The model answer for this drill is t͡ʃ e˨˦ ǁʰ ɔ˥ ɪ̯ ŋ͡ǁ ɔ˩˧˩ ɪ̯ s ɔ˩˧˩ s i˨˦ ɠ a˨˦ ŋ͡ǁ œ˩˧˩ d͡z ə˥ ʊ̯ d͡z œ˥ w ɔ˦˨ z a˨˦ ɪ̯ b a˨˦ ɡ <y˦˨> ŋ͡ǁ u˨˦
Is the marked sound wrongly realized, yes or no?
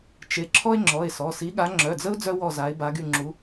no